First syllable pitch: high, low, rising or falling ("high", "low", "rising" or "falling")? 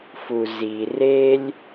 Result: low